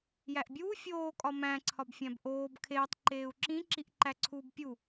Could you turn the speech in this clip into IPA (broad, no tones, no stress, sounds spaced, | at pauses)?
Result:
j æ ʔ bʲ uː fʲ oː kʼ ɒ m æ̃ ǀʰ ɒ b fʲ æ̃ b ʔ oː b kʰ eː tˤ ǃ eː u̯ ǁ ĩ ǁ i ʔ ǃ æ ǀʰ uː b pʲ u